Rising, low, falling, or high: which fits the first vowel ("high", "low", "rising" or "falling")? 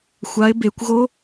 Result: rising